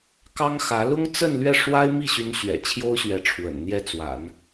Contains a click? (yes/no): no